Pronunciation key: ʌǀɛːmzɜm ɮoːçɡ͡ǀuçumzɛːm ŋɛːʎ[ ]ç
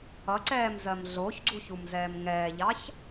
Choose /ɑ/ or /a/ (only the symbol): ɑ